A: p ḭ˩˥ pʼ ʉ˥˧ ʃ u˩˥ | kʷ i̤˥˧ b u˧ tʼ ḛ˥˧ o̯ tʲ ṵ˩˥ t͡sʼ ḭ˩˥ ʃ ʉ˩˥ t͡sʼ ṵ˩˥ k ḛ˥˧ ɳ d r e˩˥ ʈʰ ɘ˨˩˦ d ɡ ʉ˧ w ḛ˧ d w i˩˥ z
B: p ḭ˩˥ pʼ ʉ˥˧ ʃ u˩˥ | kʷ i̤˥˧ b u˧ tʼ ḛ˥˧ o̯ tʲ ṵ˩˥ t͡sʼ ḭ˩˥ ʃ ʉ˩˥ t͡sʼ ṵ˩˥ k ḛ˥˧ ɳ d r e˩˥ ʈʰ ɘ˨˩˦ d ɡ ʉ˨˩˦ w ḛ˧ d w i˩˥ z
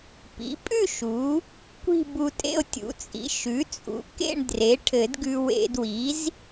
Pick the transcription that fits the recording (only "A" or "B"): A